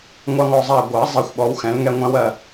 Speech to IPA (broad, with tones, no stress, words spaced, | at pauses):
ŋʷɑ˦ŋɔ˦˨zˤa˦˨ ɡʷa˨˩˦ zˤɛ˦xʷɓɔ˨˦wxɛ̃˨˦l ŋɛ˦˨ŋʷæ̃˦wɜ˦˨